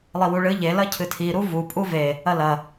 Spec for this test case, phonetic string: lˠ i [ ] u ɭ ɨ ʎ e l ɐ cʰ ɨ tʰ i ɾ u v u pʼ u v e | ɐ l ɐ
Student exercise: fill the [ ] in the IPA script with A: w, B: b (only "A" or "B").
A